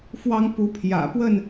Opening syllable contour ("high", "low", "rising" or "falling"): high